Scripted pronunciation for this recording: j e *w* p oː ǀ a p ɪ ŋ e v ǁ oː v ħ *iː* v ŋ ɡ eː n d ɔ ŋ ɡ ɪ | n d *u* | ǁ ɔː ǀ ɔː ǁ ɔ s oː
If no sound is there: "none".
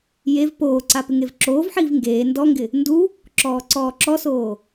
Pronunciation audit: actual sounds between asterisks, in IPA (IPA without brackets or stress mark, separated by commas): v, iː, u